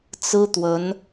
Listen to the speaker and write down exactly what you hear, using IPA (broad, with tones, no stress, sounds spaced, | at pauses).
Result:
t͡s ɹ̩˥ t̪ w ə˧˥ n